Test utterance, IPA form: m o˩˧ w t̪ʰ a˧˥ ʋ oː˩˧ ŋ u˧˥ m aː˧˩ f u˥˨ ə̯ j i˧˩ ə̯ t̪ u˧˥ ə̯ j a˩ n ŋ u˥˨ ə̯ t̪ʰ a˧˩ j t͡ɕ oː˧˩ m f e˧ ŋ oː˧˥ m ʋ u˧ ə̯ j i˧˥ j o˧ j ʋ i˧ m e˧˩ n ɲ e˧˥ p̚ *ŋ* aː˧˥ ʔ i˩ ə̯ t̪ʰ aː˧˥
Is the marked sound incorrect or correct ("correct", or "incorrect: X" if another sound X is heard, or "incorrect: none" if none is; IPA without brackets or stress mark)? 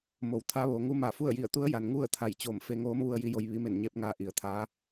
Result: correct